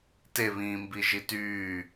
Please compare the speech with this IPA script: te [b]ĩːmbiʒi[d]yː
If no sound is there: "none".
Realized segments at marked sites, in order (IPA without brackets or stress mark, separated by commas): β, t